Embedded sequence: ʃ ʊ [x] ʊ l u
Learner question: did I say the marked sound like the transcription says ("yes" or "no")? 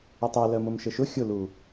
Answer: no